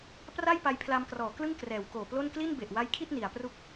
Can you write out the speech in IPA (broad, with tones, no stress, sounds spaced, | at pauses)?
p r a˥˩ j p a˧ j pʰ l a˧ m k r ɔː˩˦ k l ɯ˥˩ ŋ k r ɛː˩˦ w k oː˨˩ p l o˥˩ n k l i˥˩ n b e˨˩ ʔ w a˦˥ j kʰ i˥˩ t̚ n i˩˦ a̯ p r u˥˩ k̚